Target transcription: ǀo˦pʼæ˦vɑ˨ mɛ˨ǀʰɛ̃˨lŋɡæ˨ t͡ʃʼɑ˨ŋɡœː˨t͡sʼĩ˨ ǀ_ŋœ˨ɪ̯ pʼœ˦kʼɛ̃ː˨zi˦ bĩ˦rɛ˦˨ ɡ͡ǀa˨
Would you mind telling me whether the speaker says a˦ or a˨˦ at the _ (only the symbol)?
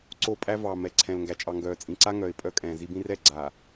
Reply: a˦